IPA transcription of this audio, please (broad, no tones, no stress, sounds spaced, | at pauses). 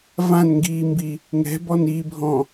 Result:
v ã n ŋ ɡ iː m b i | ŋ ɛ̤ b ɔ n iː bʱ ɔ̃